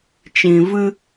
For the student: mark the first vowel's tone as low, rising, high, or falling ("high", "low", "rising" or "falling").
low